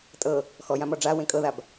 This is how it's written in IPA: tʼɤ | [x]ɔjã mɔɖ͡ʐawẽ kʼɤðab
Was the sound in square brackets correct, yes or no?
yes